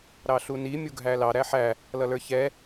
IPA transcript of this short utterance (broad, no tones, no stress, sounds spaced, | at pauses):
ɾ ɑ ɬ u n i mʲ u ɡʱ æ l ɑ ɾ æ ħ æ | l ʌ l ə˞ ç ɛ